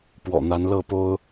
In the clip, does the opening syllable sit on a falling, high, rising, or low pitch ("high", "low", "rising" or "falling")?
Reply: low